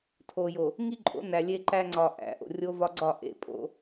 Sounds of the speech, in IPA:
tʰo˨jo˨ | ŋi˦ǃʼo̰˨˦næ˨ lʲe˦ ǃæ˦ŋ͡ǀɒ˨ ʔæ̰˨ ʔo̰˨rʲo˦ vɒ˦ɡ͡ǀɒ˦˨ʔḛ˦ pʼo̰˦

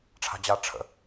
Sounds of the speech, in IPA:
ʈ͡ʂʰa̤d͡ʑa ʈ͡ʂʰə̰

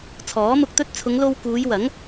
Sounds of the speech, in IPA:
t͡sʰɔː˨˥mʊ˧k̚t̪ɵ˥t̚ t͡sʰʊ˨˧ŋlo˧wkuː˨˧jwɐ˨˥ŋ

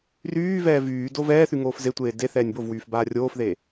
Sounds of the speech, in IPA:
ryːvɛː vyːdo vɛːθy ŋoːfzetʷeː de θɛːnʲbovwyːf baːrʲoːfðe

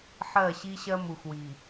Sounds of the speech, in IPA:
ħɜ˦˨ɕi˦ɕɜ˦ mu˨xwi˨

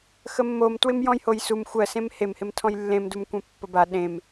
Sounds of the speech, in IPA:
xəmːom twɪmjɔ̃jhojsum xʷɜ sẽmhem hɪmtʰɔ̃jlːẽm dumkʷẽpːəba ɗẽm

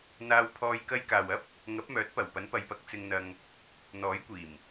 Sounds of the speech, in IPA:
n̪aː˧wpʰɔː˧j kɐ˧jkaː˨wɐ˥p̚ | ŋɐ˨˥p̚mœː˨˥t̚pɐ˨˩w pɐ˨˥npɐ˨˧jpɐ˨˥k̚ t͡sɪ˧ŋn̪ɐ˧ŋ | n̪ɔː˨˥jkʷiː˨˩m

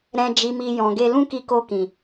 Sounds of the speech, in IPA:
ɾɛ̃˨ d͡ʒi˨mi˨ jɔ̃˨ɡe˧ lũ˦ki˧ko˧kĩ˨

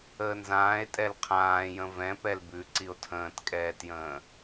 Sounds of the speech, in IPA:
əːnzãːe̯tʼɛl qʰãːjə̃ vɛ̃pɛl bʉǀio̯ tʰə̃ːtkʼɛːtjə̃ː

